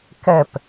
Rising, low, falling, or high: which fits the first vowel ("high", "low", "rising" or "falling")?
falling